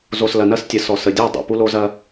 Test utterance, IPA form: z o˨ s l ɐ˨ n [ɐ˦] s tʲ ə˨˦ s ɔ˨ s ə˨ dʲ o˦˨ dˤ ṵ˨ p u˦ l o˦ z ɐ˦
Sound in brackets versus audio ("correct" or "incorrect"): correct